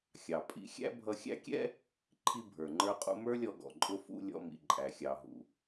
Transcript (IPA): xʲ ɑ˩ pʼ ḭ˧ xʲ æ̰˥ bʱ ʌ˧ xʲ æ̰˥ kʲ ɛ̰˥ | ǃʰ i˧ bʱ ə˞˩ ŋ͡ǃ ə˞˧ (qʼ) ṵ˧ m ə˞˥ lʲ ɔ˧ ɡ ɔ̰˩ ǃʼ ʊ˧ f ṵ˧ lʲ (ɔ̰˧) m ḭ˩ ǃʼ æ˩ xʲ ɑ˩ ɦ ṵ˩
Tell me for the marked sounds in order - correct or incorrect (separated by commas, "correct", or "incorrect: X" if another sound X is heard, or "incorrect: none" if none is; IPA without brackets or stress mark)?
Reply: correct, correct